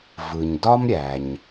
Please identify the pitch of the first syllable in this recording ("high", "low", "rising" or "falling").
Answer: low